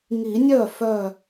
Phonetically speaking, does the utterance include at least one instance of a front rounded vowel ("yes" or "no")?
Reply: yes